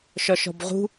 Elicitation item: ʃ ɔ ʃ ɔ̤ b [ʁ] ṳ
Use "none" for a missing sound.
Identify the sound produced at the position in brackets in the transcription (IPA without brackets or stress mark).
ʁ